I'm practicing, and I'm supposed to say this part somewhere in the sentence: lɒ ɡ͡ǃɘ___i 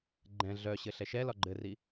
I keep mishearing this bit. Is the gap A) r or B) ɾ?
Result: A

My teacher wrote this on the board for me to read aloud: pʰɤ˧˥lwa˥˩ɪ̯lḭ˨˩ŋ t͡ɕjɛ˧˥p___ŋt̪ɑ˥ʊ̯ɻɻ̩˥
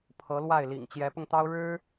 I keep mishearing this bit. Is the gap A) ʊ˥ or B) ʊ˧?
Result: B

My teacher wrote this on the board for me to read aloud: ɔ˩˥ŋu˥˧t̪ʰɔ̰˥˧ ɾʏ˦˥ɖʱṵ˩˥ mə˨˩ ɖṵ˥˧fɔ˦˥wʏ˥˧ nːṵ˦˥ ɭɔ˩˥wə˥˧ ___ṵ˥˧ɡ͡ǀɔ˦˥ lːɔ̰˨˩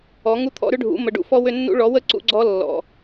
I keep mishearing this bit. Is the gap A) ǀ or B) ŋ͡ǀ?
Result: A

